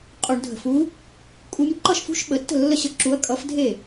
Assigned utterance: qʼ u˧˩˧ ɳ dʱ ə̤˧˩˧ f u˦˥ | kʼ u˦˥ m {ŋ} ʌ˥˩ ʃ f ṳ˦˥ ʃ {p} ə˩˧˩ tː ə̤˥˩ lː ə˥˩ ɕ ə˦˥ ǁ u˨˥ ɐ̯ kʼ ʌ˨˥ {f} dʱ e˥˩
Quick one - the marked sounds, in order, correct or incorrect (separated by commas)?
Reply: incorrect, incorrect, correct